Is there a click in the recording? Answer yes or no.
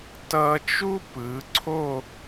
yes